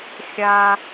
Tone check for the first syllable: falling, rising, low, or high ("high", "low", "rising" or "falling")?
high